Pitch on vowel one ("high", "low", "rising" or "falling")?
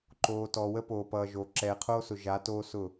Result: low